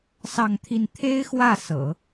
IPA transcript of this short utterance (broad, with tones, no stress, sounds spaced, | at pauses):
s ɑ˥˧ ŋ t̪ʰ i˥˩ n t̪ʰ e˥ ɪ̯ x w ä˥˩ s ɤ̰˨˩˦